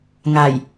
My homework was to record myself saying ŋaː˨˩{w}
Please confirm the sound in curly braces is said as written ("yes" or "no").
no